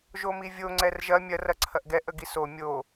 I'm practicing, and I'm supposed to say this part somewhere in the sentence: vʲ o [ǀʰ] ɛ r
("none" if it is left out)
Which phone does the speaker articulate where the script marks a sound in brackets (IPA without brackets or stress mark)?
ŋ͡ǀ